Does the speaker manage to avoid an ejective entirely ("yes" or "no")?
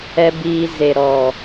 yes